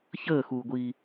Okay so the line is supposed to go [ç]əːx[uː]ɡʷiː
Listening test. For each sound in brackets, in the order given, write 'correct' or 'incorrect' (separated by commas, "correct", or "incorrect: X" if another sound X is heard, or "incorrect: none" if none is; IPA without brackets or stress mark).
correct, correct